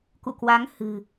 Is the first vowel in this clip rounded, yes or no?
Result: yes